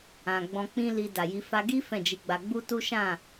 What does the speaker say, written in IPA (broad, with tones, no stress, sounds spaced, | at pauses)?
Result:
ã˨ ɡ͡b ɔ̃˧ k͡p ĩ˦ l i˧ d a˨ j i˨˦ f a˧ ɡ i˦ f ɛ̃˦˨ d͡ʒ i˧ ɡ͡b a˧ ɡ͡b u˦ t u˦ ʃ ã˦˨